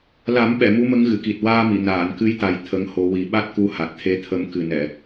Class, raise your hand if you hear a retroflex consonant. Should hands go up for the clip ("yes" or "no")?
no